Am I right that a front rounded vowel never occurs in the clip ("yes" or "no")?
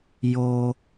yes